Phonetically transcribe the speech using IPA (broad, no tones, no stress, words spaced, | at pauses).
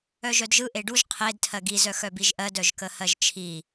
œʒœdʒɯ ʔeɖuʒ qʰed tʰɜɡi zœxœbiʒʔɜd œʒkəhɜʒt͡ʃʰi